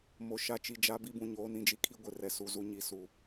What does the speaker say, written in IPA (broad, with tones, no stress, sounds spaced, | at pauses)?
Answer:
m o˨ ʃ a˦ t͡ʃ i˨ d͡ʒ a˦ b i˦ b ũ˨ ɲ oː˦ n ĩ˦ d͡ʒ i˦ kʰ i˦ ɡʷ ɪ˨ r ɛ˦ s u˦ z u˦ ɲ i˨ s u˨